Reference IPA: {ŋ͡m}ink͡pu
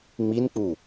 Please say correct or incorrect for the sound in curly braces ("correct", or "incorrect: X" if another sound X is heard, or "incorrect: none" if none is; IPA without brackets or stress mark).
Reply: correct